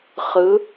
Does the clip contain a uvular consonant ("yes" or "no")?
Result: yes